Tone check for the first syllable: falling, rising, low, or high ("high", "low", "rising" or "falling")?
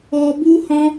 high